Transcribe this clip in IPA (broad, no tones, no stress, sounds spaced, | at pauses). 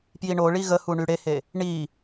p j i ɳ o ɭ i ɣ ə h u ɳ y ɽ e h e | ɳ i